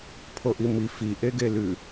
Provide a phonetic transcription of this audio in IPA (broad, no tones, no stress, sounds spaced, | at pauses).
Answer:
pʰ o ʔ i m i f i ʔ e ɡ e l ʉ